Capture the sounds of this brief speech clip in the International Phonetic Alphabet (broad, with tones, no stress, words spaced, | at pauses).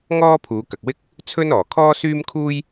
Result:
ŋɔː˥pʰuː˨˧kɐ˨k̚wɪ˥k̚ | t͡sʰɵ˥nɔː˨˩ kʰɔː˥syː˥mkʰuː˥j